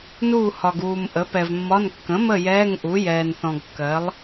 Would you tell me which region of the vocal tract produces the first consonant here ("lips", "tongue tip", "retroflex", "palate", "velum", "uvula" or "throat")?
tongue tip